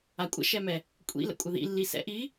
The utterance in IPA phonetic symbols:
a kʷʼ ə̰ ʃ ɛ m ɛ | kʷʼ ḭ l ə̰ kʷʼ ə ð ḭ lː i s ɛ̰ ʔ i

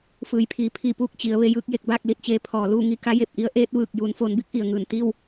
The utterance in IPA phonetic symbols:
f ɯː˩˧ j pʰ iː˩ pʰ i˥˨ p uː˥˨ k̚ t͡ɕ i˩˧ ə̯ ʋ e˧ j ɯː˥˨ k̚ j e˧˩ k̚ b aː˥˨ k̚ l i˧˩ t̚ t͡ɕ eː˧ pʰ ɔː˩ l uː˥˨ ŋ i˥˨ k a˧˥ j e˧˩ p̚ ʔ i˧˥ ə̯ ʔ eː˧˥ t̚ ʋ ɯː˧˩ k̚ j uː˩˧ n f oː˩˧ n b i˧˥ k̚ ʔ i˩ ə̯ ŋ ɯː˧˩ n t̪ i˥˨ w

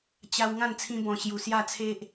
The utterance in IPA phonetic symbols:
t͡ɕ a˧ w ŋ ã˥˧ n t͡sʰ ĩ˧ b ɔ̃˨˩ ɕ j u˨˩ s j a˥˧ t͡sʰ e˦ ʔ

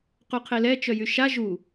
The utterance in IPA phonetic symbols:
q u qʰ e l ɛ t͡ʃ œ j y ʃ a ʒ u

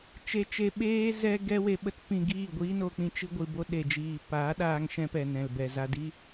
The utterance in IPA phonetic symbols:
t͡ʃ e˧ t͡ʃ e˧ ɓ eː˦ z ɛ˦ ɡ ɛ˦ w e˧ ɓ ə˦ t p ĩ˧ ɡ iː˦˨ ɡʷ iː˦ n o˧ k͡p ĩ˧ t͡ʃ ɨ˧ ɡʷ ɨ˨ b o˧ ɗ e˨ d͡ʒ iː˨ p aː˨˦ ɗ aː˧ ŋ ʃ ɛ̃˧ p ɛ˨ n ɛ̃˨ l b ɛ˨ z a˧ d i˦

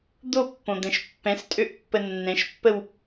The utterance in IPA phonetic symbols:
d̪ o pː õ d̪ ɛ̃ ʃ pː ɛ̃ s tʼ ø ʔ pː ə nː ɛ̃ ʃ pː ə w

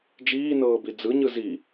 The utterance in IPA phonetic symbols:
d͡ʒ iː n ɤː b i d͡z ɯ ɲ ɯ z i

